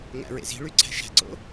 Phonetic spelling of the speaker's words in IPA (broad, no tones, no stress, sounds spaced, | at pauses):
ŋ æ̰ ɹ ḛ z i̤ ɭ y ǀʰ æ̤ ʃ æ̤ ǀ o̰